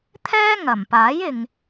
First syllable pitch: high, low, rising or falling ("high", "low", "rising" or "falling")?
high